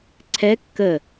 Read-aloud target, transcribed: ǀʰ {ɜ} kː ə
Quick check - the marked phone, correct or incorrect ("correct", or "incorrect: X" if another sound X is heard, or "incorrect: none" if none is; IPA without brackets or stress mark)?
incorrect: ɛ